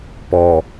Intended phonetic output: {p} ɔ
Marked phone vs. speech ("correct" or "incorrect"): correct